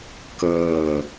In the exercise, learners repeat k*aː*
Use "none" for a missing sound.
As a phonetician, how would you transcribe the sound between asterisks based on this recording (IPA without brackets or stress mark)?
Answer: əː